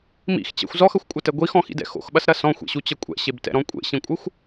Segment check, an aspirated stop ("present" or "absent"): absent